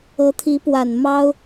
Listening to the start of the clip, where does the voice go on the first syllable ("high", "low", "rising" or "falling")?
rising